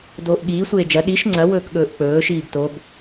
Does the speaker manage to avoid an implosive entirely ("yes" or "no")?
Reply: no